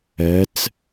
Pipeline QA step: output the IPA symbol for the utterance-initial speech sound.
ɜ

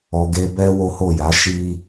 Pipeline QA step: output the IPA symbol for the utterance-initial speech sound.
ɔ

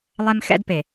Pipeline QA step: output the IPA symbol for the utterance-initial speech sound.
lˠ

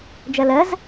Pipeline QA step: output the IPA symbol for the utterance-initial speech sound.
d͡ʒ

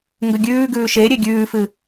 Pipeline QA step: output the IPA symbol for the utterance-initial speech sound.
ŋ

